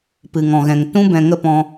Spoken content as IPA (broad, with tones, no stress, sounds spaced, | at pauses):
p ɨ˨ ŋ ɔ̃˨ ɣ ɛ̃˨ ŋ t ũ˦ b ɛ̃˧ ŋ ə˦ p ɔ̃˧